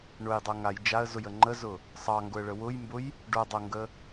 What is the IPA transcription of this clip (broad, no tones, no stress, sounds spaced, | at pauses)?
ɳ ʊ j dˤ o ŋ a j d͡ʒ a ə̯ z ʊ j ə ŋ͡ǃ ə z ʊ | sˤ ɑ ŋ ɡ ʊ ə̯ ɭ ə w ʊ j m b ʊ j | ɖ o dˤ o ŋ ɡ ə